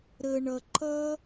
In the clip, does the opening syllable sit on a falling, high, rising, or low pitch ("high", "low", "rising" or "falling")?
low